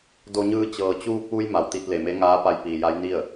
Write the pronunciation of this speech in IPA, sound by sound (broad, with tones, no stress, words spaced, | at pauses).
do˧ɲɯː˧ t͡ɕɤː˩t͡ɕuː˧k̚ʋu˧j ma˩wt̪i˧t̚le˩me˧˥ ŋaː˧˥pa˧jpiː˩ja˧˥j ni˥˨ə̯